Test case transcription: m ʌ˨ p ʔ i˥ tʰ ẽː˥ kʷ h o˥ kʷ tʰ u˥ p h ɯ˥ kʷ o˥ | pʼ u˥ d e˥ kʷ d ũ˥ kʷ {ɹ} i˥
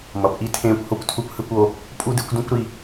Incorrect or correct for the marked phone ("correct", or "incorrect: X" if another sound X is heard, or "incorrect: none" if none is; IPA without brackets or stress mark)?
incorrect: ɾ